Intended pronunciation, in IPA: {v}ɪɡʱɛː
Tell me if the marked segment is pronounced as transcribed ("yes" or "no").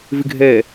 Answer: yes